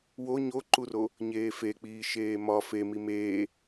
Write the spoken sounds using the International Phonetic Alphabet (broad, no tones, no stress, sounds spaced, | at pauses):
w o ɲ o ǃ u r o | ɲ eː f e k͡p iː ʃ eː m ɒ f e m i m eː